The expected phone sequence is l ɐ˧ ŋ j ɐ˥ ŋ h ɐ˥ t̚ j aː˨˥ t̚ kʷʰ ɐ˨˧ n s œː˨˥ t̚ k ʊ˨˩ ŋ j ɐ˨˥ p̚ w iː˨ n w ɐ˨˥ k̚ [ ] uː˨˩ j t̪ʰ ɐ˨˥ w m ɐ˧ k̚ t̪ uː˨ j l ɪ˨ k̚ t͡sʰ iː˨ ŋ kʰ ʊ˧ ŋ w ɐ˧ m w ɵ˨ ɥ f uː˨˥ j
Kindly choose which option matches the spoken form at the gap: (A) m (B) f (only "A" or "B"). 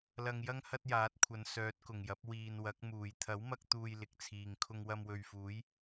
A